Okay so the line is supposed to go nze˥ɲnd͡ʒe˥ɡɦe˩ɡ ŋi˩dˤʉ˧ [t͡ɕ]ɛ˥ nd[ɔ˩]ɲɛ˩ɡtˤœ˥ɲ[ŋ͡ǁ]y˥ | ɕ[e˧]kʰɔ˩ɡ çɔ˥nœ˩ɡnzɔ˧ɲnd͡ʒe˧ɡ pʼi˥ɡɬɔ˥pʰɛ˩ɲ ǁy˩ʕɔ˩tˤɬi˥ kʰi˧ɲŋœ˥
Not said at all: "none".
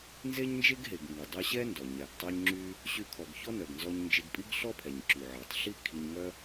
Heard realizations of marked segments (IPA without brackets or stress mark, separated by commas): ɕ, ɔ˩, ŋ͡ǁ, y˧